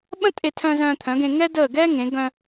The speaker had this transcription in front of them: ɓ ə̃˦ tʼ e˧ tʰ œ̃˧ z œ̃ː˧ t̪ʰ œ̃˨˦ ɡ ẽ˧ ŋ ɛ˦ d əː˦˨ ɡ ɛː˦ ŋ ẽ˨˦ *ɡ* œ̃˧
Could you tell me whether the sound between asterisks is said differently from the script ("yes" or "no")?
no